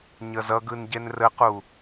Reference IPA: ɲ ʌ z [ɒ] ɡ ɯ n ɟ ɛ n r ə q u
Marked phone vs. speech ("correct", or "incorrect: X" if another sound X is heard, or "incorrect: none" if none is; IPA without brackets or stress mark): incorrect: ʌ